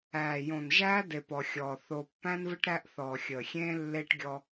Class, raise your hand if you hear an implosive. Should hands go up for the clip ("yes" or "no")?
no